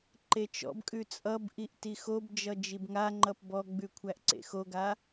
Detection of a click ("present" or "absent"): present